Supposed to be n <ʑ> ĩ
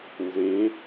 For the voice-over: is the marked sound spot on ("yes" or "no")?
no